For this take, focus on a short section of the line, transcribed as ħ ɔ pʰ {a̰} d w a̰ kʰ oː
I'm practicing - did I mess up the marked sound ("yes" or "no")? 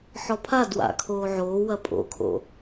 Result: yes